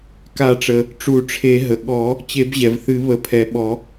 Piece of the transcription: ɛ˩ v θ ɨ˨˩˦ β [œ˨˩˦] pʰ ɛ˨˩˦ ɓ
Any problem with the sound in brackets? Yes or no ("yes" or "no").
yes